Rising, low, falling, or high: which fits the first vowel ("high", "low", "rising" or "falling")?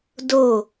falling